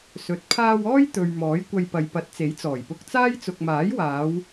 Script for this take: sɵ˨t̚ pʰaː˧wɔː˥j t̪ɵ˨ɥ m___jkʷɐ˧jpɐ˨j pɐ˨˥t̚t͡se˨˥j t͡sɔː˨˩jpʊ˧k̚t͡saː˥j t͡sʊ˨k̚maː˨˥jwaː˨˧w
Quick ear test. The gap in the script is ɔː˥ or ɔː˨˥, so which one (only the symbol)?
ɔː˨˥